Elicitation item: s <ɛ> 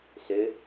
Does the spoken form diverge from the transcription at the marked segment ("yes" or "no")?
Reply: yes